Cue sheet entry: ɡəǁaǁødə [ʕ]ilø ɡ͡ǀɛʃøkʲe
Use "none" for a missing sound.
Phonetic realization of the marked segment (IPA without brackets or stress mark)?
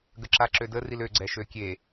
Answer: r